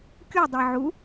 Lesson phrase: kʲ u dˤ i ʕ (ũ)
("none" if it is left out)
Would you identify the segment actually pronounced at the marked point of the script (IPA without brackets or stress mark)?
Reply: u